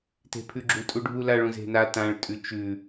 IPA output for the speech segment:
t e̤ pʰ ʉ ɡ͡ǁ u tʼ u ɖʱ u l a ɭ ũ z e̤ n a t ã ɭ tʼ ʉ t͡ʃ ʉ

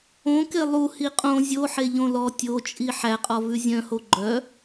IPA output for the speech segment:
õ k e lˠ u h i qʼ õ zʲ o ħ e ʎ õ l ɔ tʲ o t͡ʃʼ i ħ æ qʼ ɔ v ʉ zʲ œ̃ h o ɡ͡ǃ œ

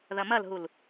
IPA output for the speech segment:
ð ɐ m ɐ l ɦ u l

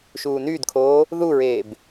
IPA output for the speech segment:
ʃ uː n yː d kʰ oː | ð u ɹ eː b

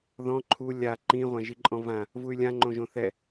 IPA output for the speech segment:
ð ɔ̃ ǃʰ u lʲ a ǃ ĩ ʁʷ ã ʒ i ǃʼ ɔ̃ v ã | v u y̯ lʲ ã ŋ͡ǃ õ ʒ õ θ ɛ

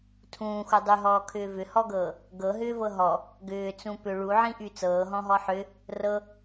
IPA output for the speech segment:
tʰ ũː x u dˤ y ɦ ɔː kʰ ʏː v ʏ h ɔ ɡ ɤː | ɡ ɤ ɦ ʏː v ɤ ɦ ɔ | ɡ ʏː t͡s ũ p ʏ ɭ u ʕ ĩ ʔ y t͡s ɤː ɦ ɔ̃ ɦ ɔ ħ ʏ | r ɤ

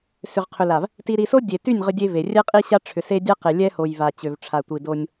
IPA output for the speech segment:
s ʏ˨ ʁ qʰ ʏ˨ l a˨ v | t i˨ ɾ i˨ s o˦ dʲ e˨ t y˦˨ nʲ ʁ ʏ˦ dʲ e˦ v e˨ rʲ ɛ˦ qʼ i˦ ɕ a˦ ʈ͡ʂʰ ʏ˨ s e˦ dʲ a˦ q e˨ lʲ ɛ˦ h o˨ j v a˨ t͡ɕ ø˨ v ʈ͡ʂʰ a˨ tʷ i˨ d o˦ nʲ

